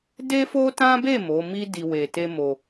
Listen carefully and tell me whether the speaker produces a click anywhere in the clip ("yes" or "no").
no